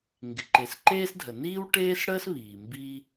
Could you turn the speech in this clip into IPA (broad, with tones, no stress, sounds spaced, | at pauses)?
ŋ ɡ ɪ˩ ǃ e˩ s ǃ eː˥ s dʱ ə˩ n iː˥ w ʈ eː˥ s ɽ əː˥ s β iː˩ m b iː˥